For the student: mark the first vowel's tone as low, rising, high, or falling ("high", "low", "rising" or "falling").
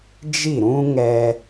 falling